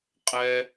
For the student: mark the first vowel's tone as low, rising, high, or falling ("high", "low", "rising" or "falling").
high